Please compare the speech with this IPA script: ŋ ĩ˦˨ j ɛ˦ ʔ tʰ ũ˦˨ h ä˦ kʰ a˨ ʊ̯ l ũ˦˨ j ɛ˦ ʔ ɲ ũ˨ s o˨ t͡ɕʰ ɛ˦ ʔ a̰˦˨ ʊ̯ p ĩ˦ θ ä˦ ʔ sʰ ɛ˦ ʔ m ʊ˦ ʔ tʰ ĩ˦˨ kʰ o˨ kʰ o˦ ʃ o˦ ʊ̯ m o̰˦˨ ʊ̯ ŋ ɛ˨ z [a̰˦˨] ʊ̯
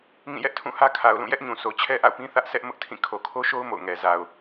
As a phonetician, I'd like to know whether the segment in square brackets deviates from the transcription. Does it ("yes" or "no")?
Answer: yes